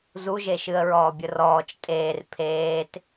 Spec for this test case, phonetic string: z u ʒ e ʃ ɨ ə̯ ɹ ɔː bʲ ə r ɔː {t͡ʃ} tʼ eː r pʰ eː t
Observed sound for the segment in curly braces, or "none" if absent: t͡ʃ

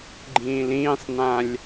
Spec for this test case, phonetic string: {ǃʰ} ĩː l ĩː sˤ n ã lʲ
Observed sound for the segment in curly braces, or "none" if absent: ɡ͡ǃ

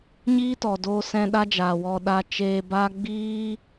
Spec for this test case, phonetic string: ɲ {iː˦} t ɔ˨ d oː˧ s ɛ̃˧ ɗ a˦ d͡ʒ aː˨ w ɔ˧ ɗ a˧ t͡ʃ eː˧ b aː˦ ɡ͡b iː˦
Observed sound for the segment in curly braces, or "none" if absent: iː˦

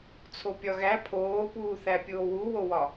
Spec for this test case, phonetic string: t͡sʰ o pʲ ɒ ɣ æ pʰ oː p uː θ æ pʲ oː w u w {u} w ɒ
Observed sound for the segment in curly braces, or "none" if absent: o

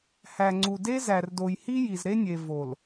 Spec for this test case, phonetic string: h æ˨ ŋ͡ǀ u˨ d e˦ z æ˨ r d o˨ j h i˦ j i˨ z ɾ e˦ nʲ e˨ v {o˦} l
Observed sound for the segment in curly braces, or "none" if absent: o˨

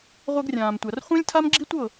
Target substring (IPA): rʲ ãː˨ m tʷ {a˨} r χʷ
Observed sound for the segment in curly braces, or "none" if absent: a˨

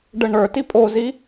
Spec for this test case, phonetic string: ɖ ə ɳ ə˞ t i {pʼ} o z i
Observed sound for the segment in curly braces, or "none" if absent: pʼ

